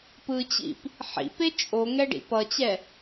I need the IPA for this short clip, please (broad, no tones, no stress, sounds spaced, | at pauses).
p ɯ t͡ɕ ḭ p | ħ ḭ p e t͡ʃʼ o ŋ ɛ ɖ ḭ p ʌ t͡ɕ ɛ